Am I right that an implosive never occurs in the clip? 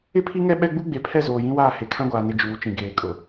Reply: no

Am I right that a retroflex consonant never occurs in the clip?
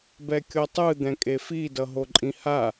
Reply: yes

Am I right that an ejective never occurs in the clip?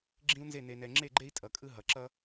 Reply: no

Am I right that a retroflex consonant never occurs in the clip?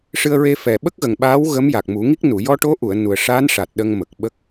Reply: no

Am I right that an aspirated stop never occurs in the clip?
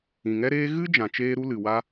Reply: yes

